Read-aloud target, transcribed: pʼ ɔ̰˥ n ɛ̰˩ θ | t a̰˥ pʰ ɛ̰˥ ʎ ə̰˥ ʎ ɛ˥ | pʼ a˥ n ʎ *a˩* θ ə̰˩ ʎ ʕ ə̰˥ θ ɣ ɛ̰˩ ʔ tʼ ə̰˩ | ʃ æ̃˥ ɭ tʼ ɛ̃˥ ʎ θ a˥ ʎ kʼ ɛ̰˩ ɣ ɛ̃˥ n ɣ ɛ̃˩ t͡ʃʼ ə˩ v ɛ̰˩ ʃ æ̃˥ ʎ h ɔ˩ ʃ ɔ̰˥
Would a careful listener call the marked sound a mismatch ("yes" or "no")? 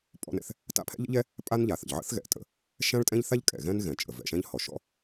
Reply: no